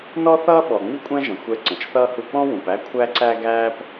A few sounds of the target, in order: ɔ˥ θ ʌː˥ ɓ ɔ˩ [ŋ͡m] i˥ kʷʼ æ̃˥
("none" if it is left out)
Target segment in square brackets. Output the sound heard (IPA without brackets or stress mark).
ŋ͡m